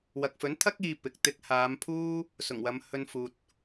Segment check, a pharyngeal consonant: absent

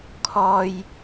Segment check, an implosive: absent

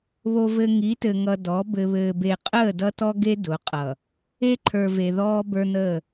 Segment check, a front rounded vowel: absent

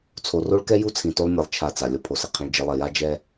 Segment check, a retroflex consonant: present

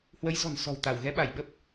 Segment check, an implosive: present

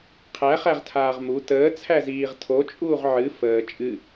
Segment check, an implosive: absent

